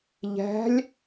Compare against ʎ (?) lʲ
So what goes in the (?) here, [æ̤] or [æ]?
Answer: æ̤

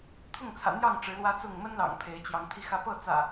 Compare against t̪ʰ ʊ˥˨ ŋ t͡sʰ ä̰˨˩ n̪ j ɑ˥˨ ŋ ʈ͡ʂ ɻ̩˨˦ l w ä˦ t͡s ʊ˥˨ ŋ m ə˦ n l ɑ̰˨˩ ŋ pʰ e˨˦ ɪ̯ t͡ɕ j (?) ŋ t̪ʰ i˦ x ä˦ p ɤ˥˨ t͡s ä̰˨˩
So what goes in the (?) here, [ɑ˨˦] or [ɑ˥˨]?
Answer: ɑ˨˦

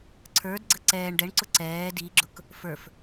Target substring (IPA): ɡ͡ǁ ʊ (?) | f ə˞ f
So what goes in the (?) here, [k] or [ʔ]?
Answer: k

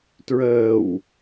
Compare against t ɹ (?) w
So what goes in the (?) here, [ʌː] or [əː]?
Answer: əː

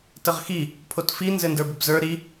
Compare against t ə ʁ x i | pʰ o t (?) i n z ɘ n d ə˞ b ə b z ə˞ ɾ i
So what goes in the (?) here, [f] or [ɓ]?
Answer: f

